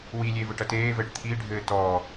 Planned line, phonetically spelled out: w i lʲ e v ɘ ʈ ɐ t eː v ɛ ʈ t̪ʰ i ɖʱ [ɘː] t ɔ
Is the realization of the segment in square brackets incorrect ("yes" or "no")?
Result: no